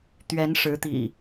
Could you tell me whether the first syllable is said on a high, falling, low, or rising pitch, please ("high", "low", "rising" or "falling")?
rising